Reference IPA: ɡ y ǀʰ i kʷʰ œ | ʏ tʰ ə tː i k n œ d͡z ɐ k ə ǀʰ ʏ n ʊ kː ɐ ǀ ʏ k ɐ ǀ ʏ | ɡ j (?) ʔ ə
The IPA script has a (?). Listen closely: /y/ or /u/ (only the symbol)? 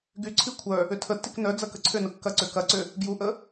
u